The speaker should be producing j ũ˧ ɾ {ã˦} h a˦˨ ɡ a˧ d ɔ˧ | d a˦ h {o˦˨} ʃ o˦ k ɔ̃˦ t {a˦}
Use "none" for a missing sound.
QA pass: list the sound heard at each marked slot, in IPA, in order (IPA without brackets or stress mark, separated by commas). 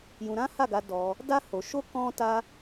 ã˦, o˧, a˦